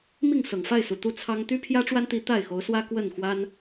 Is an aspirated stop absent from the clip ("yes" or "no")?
no